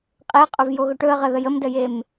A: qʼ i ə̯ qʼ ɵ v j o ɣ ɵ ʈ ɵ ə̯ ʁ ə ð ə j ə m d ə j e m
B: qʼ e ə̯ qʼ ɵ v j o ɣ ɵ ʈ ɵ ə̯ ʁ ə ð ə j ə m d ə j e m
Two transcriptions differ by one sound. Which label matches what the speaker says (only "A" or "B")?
B